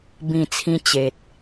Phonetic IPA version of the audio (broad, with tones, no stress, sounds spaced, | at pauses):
b ĩ˨˩ t͡sʰ ĩ˧ t͡ɕ e˨ t̚